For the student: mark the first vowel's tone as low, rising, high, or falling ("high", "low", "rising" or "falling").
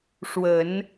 low